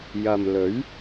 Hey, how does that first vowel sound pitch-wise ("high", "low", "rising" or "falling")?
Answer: low